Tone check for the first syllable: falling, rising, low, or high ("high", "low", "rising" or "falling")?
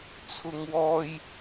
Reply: high